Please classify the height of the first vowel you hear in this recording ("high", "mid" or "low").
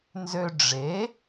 mid